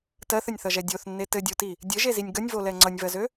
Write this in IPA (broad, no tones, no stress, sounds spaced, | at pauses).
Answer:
t ɜ θ ə nʲ θ ʌ ʒ ɛ dʲ o θ nː e t ɘ dʲ o t i | dʲ ɘ ʒ e z i nʲ ɡ ʌ nʲ v o l ɛ ŋ͡ǀ ʌ nʲ v ɜ z ø